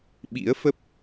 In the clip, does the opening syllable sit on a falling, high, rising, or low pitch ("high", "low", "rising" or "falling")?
rising